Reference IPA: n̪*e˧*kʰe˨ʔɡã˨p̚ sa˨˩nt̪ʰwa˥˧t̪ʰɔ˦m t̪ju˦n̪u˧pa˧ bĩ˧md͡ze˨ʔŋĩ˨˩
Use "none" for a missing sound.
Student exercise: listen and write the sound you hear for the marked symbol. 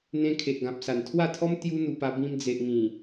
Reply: ẽ˧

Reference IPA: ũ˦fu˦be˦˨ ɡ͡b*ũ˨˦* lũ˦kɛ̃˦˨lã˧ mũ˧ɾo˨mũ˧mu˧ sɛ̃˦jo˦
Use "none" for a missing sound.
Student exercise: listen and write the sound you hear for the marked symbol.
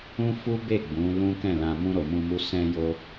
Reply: ũ˨˦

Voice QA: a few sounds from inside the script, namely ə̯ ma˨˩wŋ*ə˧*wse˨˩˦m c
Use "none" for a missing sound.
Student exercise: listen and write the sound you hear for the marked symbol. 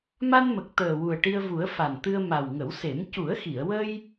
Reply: ə˨˩˦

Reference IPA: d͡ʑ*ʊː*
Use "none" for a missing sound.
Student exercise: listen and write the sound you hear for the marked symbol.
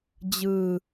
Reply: ɯː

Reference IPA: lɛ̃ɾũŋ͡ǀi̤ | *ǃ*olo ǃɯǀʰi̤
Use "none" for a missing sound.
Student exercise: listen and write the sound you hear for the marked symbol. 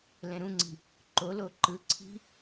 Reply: ǃ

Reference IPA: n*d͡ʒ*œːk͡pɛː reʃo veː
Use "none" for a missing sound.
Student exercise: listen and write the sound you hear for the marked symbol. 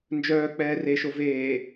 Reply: d͡ʒ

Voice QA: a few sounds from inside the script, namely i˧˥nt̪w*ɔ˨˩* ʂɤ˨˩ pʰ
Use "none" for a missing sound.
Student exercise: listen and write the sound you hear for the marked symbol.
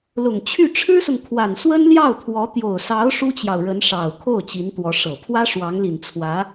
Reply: ɔ˧˥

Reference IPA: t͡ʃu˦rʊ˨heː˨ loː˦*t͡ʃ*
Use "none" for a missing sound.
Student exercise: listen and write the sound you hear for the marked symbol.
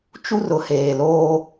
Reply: none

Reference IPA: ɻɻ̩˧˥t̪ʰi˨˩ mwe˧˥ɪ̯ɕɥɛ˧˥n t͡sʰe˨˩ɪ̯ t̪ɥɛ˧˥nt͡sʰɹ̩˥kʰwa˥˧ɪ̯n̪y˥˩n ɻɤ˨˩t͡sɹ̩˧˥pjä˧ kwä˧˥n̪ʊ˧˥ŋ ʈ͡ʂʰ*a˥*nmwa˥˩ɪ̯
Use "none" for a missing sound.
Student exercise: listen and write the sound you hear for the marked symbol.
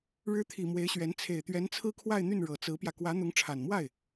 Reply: a˨˩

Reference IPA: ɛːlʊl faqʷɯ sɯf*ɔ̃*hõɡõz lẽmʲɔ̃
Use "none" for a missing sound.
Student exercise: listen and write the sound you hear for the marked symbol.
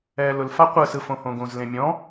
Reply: õ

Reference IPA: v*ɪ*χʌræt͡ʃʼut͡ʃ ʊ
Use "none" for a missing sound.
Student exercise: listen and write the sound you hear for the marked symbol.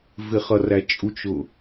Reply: ɪ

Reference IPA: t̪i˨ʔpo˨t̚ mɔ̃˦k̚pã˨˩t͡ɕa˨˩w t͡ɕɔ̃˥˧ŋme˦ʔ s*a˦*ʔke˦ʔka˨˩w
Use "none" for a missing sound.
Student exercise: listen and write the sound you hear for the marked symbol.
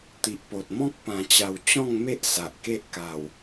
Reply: a˨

